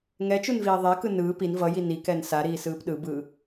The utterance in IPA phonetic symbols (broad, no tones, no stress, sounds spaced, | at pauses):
ŋ ɛ t͡ʃ u n v iː ðˤ e k ɯ n ɯː p i n v ʌ j i n i k ɛ n s a ɾ iː s ɯː p ɗ ɯ b ɯː